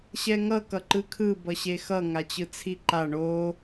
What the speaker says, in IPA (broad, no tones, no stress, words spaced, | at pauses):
ɕɛŋʌ kʌǃɯkʰɯ bʌɕexʌ ŋat͡ɕɯt͡sʰiǃa ɳo